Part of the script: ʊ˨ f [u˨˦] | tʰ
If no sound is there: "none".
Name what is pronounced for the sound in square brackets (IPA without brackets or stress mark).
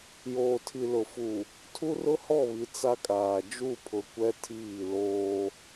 u˨